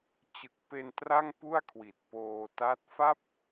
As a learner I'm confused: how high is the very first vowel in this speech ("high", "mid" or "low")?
high